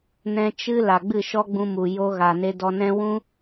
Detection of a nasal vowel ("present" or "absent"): present